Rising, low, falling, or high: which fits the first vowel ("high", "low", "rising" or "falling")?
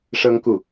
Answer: high